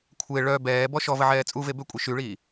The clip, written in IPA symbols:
kʷʰ e ɭ œ b ɛː b ɔ ʃ ɔ v ə ʕ ɛː t͡sʼ u v e b ø kʷʼ i ʃ y ɭ iː

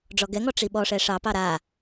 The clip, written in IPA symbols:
ɖ͡ʐ ɔ ɡ ɛ ŋ ɔ ʈ͡ʂ i ɓ ɔ ʂ ɛ ʂ ɑ p ɑ ɾ a

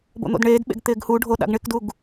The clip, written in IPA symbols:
b o̰ n̪ o̰ d ɳ eː d ɓ ḛ ɡ t̪ ɪː ɡ h u ɖʱ o ɗ a̰ ɡ ɳ ɪ k d u ɡ

